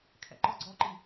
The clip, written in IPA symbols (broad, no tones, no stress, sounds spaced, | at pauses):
kʰ ɛ̰ ǃ ɔ ɡ͡ǀ ɔ ǃ i